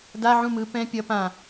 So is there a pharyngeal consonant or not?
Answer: yes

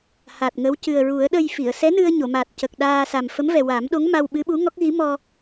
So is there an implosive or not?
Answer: yes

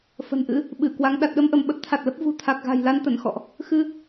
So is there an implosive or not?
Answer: yes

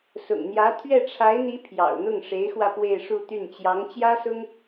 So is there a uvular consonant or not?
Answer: no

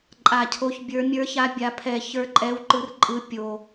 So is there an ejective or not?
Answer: yes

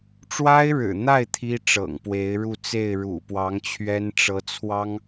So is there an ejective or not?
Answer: no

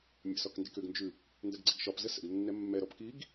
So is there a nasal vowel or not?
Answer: no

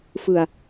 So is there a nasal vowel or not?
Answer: no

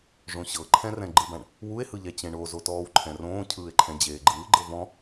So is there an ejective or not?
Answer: no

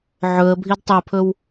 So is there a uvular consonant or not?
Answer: no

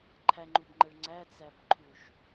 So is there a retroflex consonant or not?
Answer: yes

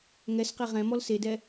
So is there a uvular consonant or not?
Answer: yes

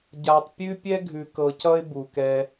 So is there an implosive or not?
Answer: no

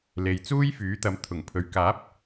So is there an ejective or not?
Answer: no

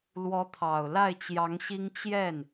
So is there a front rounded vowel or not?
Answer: no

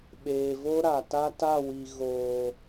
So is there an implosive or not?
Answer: yes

